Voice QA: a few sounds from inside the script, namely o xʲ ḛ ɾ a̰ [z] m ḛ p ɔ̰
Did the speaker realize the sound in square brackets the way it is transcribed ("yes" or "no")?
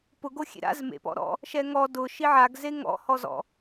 yes